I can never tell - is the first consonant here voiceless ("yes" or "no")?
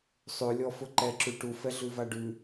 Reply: yes